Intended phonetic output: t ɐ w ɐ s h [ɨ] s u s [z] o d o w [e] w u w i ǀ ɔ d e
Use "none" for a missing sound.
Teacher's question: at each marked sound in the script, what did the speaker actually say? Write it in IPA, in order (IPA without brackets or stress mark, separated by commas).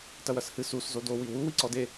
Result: ɨ, z, i